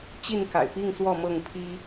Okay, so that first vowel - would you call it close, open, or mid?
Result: close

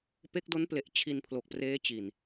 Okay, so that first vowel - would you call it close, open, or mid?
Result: mid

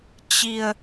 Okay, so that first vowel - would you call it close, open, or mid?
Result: close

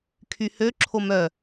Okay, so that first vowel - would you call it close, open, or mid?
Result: close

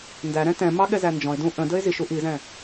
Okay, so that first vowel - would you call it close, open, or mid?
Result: open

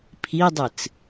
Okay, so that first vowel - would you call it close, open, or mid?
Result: close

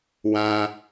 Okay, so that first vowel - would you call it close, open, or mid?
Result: open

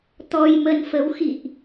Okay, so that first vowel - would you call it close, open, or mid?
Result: mid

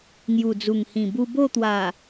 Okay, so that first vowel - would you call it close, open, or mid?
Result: close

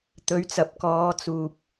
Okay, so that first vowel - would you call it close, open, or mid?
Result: mid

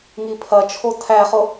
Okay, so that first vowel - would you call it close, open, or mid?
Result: close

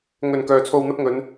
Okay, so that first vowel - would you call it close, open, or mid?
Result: mid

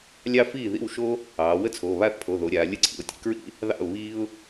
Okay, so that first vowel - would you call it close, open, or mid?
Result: open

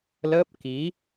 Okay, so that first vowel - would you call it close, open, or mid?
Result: mid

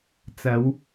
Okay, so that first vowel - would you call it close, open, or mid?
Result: open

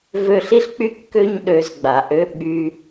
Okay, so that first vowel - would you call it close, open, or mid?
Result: mid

